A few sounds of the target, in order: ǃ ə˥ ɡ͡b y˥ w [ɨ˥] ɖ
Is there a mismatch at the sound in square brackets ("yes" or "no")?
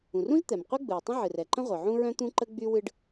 no